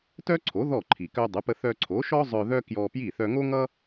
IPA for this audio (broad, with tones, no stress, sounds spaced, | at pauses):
t œ˥ ǀʰ o˩˥ ð ɔ˥˩ ǃʰ i˩ k œ˧ dˤ ə˩˥ p ə˧ θ œ˧ ǀʰ o˩˥ ʃ ɔ˥ zˤ œ˧ ð œ˥ k j ɔ˧ p j i˥˩ θ œ˧ ŋ o˥ ŋ ʌ˥